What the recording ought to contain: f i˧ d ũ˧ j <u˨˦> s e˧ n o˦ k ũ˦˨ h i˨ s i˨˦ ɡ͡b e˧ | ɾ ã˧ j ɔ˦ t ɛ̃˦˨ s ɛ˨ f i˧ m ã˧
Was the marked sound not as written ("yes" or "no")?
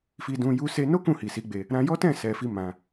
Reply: yes